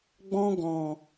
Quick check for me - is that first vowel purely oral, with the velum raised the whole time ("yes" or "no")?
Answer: no